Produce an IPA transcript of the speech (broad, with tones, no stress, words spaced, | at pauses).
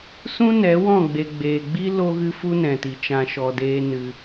sũ˦nɛ˨˦wɔ̃˦˨ ɡ͡be˨ɡ͡beː˨ɡ͡bi˦ lo˦ɣɨ˦fu˦ nɛ̃˨ti˨t͡ʃã˧ ʃɔ˧deː˦nɨ˧